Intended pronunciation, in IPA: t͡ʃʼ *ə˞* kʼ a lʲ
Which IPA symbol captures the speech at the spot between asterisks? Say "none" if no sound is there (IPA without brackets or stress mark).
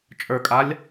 ə˞